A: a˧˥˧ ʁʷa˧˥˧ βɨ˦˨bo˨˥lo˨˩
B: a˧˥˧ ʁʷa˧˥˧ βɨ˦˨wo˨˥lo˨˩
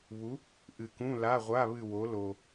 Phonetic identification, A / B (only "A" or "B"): B